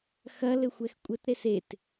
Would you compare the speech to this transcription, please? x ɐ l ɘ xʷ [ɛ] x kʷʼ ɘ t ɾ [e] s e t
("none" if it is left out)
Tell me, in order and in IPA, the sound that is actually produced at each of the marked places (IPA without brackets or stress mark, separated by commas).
ɛ, e